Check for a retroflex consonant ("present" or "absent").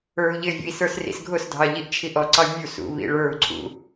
present